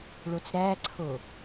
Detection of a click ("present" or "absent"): present